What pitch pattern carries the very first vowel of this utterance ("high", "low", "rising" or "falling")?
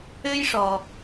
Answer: high